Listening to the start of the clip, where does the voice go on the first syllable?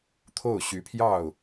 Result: falling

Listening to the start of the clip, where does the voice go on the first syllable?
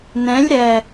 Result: rising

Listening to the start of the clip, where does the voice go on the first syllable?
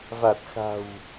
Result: low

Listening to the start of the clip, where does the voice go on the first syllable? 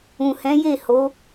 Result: low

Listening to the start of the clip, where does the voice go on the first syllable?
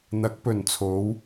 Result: rising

